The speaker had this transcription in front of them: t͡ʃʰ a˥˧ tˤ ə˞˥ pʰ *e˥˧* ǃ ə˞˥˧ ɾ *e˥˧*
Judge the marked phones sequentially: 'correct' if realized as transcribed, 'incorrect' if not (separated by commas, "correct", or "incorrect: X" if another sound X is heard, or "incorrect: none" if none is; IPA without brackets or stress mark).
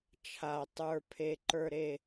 correct, correct